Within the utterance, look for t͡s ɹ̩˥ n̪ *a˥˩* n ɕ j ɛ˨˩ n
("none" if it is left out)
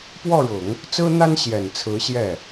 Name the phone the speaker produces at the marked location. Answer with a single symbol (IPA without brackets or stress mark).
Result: a˥